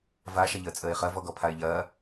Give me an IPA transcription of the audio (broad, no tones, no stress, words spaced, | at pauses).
va ʃɐʎəːt͡sʼəːɪ̯χɐ vɔɡɔpʰaɪ̯ʎɐː